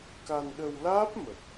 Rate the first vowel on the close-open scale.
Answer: open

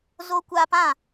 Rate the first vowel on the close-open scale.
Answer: mid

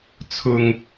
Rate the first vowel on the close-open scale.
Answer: close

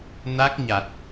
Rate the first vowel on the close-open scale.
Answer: open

